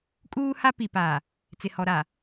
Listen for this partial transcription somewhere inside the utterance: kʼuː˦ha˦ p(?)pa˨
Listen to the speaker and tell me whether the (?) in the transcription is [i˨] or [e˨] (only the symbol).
i˨